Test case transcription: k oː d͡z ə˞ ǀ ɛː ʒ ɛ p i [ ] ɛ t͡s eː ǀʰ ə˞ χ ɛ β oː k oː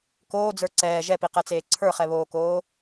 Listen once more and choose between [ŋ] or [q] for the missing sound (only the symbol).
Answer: q